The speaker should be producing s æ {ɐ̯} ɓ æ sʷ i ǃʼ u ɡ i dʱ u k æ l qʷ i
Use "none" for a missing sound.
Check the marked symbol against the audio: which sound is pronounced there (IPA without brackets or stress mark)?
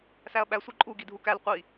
ɐ̯